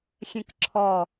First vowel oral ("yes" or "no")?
no